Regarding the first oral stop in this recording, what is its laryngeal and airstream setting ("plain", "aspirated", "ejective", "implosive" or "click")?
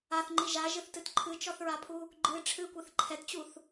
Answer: click